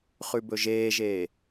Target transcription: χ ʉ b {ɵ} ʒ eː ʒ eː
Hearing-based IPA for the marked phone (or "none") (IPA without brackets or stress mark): ɵ